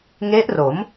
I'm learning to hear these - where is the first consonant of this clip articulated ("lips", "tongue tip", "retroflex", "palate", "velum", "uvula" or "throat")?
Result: velum